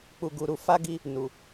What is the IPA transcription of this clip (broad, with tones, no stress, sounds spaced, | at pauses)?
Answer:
k͡p u˨ ɡ u˨ ɾ u˧ f a˦ ɡ i˧ | n u˨